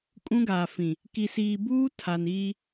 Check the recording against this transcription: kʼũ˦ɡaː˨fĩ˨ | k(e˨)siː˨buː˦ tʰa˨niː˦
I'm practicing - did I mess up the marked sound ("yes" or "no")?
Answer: yes